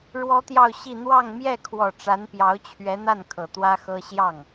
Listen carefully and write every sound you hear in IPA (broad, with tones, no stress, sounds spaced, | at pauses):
ɻ w ɔ˥ t̪ j ɑ˥˧ ʊ̯ ɕ i˥˧ n̪ w ɑ˥˧ ŋ m j ɛ˥˩ kʰ w ɔ˨˩ ʈ͡ʂ a˧˥ n p j ɑ˧˥ ʊ̯ t͡ɕʰ ɥ ɛ˧˥ n̪ a˥˩ n kʰ ɤ˨˩ t̪ w ä˥ x ɤ˥ ɕ j ɑ˥˩ ŋ